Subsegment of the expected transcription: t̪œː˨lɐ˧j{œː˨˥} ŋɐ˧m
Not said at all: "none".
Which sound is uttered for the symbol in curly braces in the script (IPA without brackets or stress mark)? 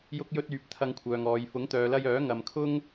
œː˨˥